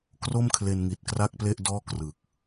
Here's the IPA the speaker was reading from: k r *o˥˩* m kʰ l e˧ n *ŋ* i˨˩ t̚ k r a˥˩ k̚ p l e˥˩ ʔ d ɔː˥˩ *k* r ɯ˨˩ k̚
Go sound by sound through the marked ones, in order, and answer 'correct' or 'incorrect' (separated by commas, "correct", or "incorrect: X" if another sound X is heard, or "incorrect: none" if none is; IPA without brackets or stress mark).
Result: correct, correct, correct